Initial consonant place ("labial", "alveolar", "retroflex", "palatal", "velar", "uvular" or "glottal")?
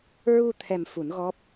alveolar